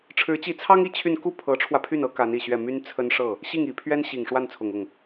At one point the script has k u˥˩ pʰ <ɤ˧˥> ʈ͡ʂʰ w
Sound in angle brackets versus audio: correct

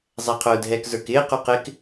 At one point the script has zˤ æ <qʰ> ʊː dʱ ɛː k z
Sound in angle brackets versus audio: correct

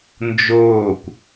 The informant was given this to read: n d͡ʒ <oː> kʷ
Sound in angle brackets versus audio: correct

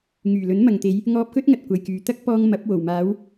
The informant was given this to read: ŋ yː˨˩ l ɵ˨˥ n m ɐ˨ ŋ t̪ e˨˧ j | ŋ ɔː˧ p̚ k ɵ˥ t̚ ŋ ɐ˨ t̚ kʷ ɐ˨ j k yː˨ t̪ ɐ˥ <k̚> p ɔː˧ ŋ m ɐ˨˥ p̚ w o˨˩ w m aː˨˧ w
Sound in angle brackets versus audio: correct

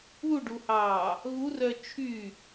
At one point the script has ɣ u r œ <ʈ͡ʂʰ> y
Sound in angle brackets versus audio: incorrect: t͡ʃʰ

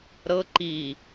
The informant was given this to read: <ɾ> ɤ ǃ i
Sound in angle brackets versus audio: correct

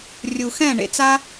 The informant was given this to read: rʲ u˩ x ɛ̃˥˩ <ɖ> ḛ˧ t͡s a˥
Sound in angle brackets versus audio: incorrect: ɳ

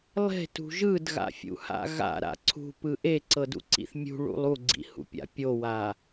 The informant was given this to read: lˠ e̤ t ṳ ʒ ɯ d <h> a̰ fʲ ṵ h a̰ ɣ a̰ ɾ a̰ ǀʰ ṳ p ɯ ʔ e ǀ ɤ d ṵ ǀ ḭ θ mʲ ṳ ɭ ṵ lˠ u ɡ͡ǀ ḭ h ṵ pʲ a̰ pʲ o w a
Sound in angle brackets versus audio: incorrect: ɣ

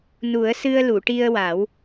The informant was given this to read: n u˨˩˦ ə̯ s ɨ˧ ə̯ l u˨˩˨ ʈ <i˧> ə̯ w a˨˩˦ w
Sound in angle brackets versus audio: correct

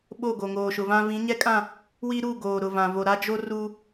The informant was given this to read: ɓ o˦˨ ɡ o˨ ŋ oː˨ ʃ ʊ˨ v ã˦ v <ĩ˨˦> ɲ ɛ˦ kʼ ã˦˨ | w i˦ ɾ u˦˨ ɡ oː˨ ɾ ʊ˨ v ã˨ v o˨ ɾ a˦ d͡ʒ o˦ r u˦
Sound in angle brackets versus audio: correct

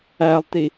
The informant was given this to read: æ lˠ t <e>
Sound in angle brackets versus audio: incorrect: i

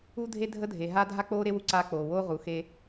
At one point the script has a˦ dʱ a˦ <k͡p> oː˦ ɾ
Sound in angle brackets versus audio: correct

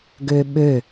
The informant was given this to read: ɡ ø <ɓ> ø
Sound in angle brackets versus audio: correct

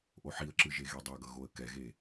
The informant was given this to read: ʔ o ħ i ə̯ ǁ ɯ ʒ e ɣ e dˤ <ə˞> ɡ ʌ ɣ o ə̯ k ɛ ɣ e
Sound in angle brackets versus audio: incorrect: ʌ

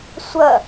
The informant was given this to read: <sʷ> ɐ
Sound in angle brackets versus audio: correct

